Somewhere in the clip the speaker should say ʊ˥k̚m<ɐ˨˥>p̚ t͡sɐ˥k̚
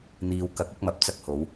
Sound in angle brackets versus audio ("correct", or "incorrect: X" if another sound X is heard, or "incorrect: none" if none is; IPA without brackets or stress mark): correct